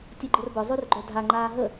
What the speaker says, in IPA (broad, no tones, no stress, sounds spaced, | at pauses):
tʲ œ ɡ͡ǃ ə r b œ zˤ y r ɡ͡ǃ œ dʱ a ŋ͡ǃ aː ɦ ə